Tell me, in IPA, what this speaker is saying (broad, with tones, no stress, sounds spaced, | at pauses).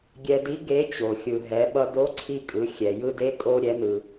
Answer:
ɡʲ ɛ˧ d i˧˥ ɡ e˧˥ t͡ɕ o˩ xʲ ɯ˩ ɦ ɛ˩˧ ɓ ʌ˧ d o˧˥ ǀʰ i˧ kʼ ɯ˩˧ xʲ ɛ˩ j ɯ˧ d e˧˥ kʼ o˧ ɾʲ ɛ˩˧ n ɯ˩